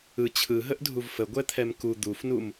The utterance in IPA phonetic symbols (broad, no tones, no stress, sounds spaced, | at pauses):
ɯ t͡ɕʰ ɯ ɦ ə ʔ dʱ u v f ə ɡʷ ɛ t̪ʰ ɛ m k u d̪ u f n u m